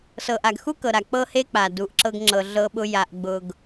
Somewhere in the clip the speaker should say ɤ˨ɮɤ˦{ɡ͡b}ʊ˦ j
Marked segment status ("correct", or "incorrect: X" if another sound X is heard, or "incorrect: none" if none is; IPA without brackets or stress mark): incorrect: ɓ